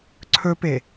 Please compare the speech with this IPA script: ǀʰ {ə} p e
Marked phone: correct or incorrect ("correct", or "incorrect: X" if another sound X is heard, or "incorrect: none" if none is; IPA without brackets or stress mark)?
incorrect: ɵ